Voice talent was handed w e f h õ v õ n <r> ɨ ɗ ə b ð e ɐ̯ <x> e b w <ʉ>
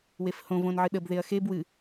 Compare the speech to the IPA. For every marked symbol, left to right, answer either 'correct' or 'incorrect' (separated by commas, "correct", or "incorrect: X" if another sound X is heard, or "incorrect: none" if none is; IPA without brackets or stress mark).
incorrect: ʕ, correct, incorrect: ɨ